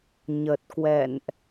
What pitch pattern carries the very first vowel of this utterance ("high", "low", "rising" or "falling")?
low